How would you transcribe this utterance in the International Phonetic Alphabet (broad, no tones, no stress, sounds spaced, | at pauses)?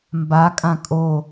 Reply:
m b a kʼ ã kʼ o